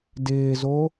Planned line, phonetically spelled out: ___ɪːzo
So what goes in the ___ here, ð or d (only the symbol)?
d